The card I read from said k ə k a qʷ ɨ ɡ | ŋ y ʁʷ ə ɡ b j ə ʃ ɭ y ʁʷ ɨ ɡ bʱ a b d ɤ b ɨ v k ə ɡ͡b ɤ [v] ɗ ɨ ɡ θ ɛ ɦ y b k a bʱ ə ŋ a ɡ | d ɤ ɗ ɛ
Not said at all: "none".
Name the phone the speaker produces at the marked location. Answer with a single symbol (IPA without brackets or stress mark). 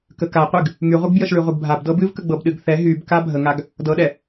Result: b